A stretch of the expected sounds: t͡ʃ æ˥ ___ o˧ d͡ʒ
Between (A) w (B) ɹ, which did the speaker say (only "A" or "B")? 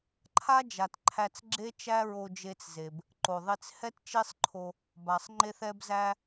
B